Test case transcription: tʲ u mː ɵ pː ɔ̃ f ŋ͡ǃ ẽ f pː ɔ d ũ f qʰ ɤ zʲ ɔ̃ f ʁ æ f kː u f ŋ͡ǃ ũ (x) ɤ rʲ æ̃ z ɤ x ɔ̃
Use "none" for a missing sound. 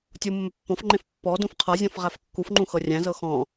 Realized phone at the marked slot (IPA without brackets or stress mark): x